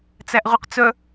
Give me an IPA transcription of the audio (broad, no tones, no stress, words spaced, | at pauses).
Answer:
t͡sæʔʁyqt͡sœ